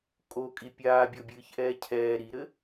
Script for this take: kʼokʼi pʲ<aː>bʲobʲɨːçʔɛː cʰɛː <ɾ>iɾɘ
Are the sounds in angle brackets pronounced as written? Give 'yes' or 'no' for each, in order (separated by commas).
yes, yes